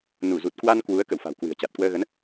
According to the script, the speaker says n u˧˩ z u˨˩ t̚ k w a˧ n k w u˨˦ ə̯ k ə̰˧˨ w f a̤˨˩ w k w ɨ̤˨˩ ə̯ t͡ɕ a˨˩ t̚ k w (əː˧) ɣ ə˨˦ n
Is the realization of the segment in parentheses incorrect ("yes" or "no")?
no